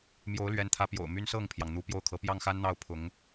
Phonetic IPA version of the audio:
m j o˧˥ ʊ̯ l ɥ ɛ˧˥ n t̪ʰ ä˧˥ p j o̰˨˩ ʊ̯ m y˥ n s ɤ˥˩ ŋ pʰ j ɑ˩ ŋ n̪ u˧˥ p j o˥˩ ʊ̯ kʰ ɤ˧˥ p j ɑ˥˩ ŋ x a˥ n n̪ ɑ˥˩ ʊ̯ pʰ ʊ˧˥ ŋ

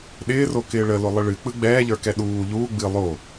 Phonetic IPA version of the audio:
ɗ ɪː r o k ɪː ɭ ə l o lˠ ə ɭ ɨ k͡p ɯ ɡ͡b ɛː ʎ ə˞ k ɛ ɗ uː ʎ uː ɡ͡b ɨ lˠ o

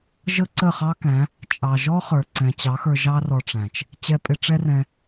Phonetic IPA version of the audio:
ʒ ə˦ ǀ ə˦˨ χ ɑ˦ k æ̃˨˦ | t͡ʃʼ ɑ˨ ʒ ɔ˦ χ ə˞˨ ǀ ɛ̃˨ t͡ɕ ɑ˨˦ x ə˞˧ ʒ ɑ˦ r ɔ˧ ʈ͡ʂ æ̃˨ t͡ʃ | t͡ɕ ɛ˧ pʼ ɪ˧ ʈ͡ʂ ɛ˦ r ɛ̃˧

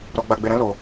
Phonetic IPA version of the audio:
ɾ ɔ˧ ɡ͡b a˧ ɡ͡b e˧ ɾ ɛ̃˦ l o˧

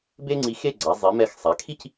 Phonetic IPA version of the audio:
b e˥ ŋ͡ǀ i˧ x e˥˧ ɡ͡ǀ a˩˧ zˤ i˩˧ m ɛ˧˩ x sˤ a˩˧ kʰ i˥˧ c

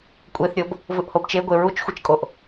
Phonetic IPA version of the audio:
kʷʼ e θ ɾʲ ɤ b | v ɯ ʔ h o b t͡ʃ e ɡʷ e ɹ u t͡ʃ xʷ i t͡ʃ kʼ o ʔ

